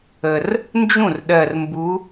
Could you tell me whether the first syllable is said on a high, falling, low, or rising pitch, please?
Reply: low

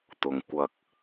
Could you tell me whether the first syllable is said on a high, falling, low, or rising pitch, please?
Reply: low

